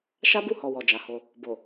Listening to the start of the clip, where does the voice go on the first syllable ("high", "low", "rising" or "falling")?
high